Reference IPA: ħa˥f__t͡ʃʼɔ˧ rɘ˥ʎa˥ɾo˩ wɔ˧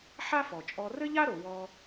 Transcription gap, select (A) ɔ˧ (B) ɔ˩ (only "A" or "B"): B